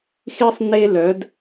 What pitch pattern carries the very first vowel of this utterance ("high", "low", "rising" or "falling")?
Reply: high